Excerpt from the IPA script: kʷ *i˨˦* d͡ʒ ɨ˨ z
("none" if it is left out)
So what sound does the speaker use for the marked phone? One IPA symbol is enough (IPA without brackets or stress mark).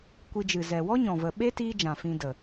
i˧